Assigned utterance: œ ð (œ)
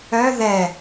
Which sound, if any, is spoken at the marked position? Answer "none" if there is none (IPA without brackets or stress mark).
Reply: ɛ